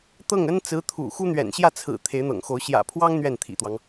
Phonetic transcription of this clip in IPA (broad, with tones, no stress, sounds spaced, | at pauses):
t̪ ɤ˥˩ ŋ ə˥ n t͡s ɹ̩˧˥ t̪ʰ ṵ˨˩ x u˥ n̪ ɥ ɛ̰˨˩ n ɕ j ä˥˩ t͡sʰ ɹ̩˨˩ t̪ʰ e˧˥ ɪ̯ n̪ ɤ̰˨˩ ŋ x o˧˥ ʊ̯ ɕ j ä̰˨˩ pʰ w ɑ˥ ŋ n̪ ɥ ɛ˥˩ n t̪ʰ ḭ˨˩ t̪ w ɑ˦ ŋ